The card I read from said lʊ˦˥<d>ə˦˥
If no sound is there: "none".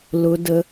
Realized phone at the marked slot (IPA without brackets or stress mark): d